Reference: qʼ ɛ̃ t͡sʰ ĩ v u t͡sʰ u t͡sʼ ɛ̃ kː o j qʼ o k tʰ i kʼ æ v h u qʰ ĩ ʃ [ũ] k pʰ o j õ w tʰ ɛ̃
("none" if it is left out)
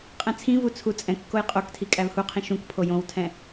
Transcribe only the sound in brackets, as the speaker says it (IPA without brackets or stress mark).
ũ